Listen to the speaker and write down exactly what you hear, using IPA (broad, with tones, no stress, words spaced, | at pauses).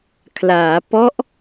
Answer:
kʰlaː˩˦ pɔ˦˥ʔ